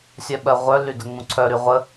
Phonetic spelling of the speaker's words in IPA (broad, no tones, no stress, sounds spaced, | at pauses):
sʲ œ ɓ ɜ ʁʷ œ l y d ə ŋ͡m ũ ǀʰ œ ɾ y ʁʷ ə